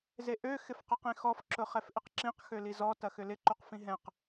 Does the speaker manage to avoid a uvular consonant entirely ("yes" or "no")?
no